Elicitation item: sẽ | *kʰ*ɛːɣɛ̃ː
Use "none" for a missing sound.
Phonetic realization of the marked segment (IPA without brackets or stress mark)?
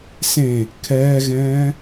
kʰ